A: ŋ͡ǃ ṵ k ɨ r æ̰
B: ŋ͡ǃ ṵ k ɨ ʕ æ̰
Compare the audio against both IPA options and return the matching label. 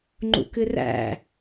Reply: A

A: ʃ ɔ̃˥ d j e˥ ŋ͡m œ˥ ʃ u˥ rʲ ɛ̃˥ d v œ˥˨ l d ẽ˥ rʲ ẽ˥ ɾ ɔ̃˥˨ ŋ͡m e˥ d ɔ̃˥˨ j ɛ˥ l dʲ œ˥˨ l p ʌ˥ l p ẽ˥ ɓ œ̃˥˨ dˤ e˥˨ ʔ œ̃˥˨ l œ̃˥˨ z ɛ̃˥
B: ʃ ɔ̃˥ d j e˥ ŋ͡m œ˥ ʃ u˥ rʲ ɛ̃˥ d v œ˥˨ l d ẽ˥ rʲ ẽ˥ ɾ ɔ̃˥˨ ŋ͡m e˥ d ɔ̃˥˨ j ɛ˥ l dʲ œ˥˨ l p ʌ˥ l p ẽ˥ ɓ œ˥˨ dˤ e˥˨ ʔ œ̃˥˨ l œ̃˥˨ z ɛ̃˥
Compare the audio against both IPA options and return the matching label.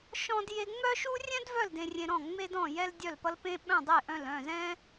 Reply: A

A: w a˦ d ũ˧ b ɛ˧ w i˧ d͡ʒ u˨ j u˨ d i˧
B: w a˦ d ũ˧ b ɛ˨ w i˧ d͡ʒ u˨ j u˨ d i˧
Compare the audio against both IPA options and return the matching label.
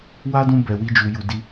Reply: B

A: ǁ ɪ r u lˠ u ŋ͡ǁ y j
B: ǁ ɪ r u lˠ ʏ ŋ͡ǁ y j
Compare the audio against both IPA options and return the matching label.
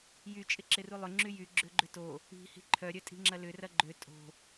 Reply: B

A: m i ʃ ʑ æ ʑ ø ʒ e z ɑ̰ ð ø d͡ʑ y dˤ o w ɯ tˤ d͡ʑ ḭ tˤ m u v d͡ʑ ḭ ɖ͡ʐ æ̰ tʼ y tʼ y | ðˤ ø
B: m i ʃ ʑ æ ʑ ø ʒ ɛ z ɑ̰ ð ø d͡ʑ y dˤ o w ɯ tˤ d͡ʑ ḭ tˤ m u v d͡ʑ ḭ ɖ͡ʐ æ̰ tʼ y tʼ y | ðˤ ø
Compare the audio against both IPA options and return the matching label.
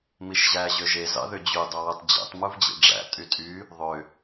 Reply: A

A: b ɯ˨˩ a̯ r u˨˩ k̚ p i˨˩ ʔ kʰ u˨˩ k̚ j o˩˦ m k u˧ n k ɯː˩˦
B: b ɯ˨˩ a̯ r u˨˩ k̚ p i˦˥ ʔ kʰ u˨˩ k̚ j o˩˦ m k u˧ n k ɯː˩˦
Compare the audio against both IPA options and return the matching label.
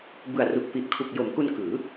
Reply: A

